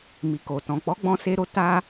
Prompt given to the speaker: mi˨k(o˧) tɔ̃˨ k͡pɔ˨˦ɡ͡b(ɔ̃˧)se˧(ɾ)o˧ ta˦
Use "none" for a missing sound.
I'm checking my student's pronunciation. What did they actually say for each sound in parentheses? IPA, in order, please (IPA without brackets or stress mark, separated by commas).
o˨, ɔ̃˧, ɾ